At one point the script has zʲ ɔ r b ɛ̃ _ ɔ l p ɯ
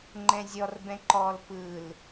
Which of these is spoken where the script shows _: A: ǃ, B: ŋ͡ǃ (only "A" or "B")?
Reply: A